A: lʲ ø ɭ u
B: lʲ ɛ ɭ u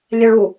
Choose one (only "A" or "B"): B